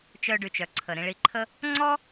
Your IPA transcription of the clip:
t͡ʃ œ˧ ɖ y˩ t͡ʃ œ˩ ǀʰ ə˩ ɾ ĩ˧ ɭ i˧ ǃʰ ə˥ | ŋ͡ǀ ɔ˥

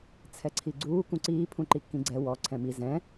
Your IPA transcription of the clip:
t͡sʰ ɛ ǀʰ i ɡ͡ǀ uː k ũ ǀ iː pʰ ũ ǃ i kː ĩ ɡ͡ǀ ɛ w ɔ ǀʰ ɛ̃ m i z ɛ̃

